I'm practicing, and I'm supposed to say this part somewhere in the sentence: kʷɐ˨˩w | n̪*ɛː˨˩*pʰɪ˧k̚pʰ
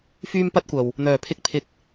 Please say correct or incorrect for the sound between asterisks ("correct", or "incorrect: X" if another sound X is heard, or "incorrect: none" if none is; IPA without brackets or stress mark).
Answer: incorrect: œː˨˩